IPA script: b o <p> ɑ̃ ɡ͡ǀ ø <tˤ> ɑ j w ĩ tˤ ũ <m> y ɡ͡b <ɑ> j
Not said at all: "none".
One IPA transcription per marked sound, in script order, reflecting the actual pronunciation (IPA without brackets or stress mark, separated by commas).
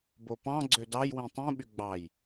p, d, ɓ, ɑ